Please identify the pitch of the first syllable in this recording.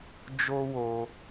high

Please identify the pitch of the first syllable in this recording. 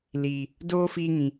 low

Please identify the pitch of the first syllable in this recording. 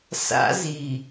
high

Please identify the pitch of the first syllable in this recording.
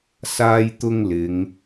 high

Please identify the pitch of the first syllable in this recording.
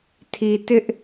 low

